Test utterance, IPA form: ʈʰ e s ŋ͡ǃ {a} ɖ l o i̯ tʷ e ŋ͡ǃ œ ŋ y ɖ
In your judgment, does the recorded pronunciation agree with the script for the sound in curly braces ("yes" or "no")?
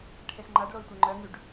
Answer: yes